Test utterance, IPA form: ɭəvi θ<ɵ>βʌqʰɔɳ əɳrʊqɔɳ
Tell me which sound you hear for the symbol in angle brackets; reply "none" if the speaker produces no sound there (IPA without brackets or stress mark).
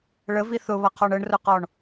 ʊ